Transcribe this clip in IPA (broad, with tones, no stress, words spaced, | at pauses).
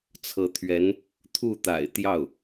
t͡sʰɤ˧˥t̪ʰɥɛ˧˥n | t̪ʰu˥˩t̪a̰˨˩ɪ̯t̪jɑ˥˩ʊ̯